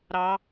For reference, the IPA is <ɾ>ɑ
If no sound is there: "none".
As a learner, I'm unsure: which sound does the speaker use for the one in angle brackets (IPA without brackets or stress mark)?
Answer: ɾ